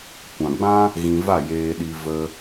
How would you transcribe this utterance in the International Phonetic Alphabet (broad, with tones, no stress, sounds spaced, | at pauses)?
kʷ ã˨ ɡ͡b ã˦ | ɣ ĩ˧ v a˦˨ j eː˧ ɗ i˧ v ə˧